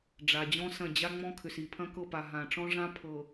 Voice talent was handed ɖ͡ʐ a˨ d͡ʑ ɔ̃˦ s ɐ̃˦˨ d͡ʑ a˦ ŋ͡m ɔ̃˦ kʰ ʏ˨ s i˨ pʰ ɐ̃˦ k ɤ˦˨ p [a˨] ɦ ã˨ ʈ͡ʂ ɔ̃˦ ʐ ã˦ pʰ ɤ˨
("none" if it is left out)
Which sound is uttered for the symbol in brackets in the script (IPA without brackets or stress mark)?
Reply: a˨